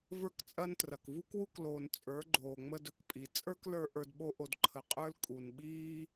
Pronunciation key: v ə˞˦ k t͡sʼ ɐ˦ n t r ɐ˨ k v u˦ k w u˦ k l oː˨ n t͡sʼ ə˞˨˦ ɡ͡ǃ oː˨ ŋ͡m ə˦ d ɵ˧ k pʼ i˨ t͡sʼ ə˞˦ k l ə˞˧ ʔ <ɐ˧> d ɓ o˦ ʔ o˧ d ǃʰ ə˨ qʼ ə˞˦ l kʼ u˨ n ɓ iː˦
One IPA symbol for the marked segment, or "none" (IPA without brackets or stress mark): ə˞˧